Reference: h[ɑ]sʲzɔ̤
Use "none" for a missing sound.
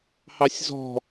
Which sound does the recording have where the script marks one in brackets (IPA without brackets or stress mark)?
ɑ